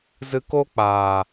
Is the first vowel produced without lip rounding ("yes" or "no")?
yes